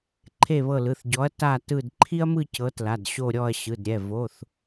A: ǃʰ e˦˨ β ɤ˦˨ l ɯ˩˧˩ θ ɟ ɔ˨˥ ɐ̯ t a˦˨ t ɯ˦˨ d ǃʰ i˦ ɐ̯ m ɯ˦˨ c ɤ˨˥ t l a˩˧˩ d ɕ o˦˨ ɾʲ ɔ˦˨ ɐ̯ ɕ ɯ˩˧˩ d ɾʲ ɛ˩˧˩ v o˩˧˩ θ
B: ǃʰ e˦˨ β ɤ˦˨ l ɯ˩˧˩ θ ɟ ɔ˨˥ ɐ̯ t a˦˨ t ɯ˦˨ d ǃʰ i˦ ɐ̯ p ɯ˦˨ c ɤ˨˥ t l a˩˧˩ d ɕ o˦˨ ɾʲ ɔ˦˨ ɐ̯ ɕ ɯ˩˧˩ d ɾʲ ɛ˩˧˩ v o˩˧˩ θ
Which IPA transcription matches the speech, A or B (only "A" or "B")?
A